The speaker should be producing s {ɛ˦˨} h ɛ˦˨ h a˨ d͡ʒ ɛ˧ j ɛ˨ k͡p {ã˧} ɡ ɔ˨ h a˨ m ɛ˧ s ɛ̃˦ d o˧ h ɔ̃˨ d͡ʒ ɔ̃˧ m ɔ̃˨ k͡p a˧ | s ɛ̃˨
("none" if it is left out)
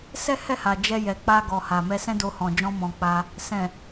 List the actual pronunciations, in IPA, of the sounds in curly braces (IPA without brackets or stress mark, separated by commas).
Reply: ɛ˦, a˧